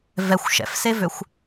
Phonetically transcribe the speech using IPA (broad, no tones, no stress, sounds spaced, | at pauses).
v ɛ xʷ ʃ ɛ̰ f s e v ø xʷ